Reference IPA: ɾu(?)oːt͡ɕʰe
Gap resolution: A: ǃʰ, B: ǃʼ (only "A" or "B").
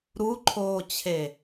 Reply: A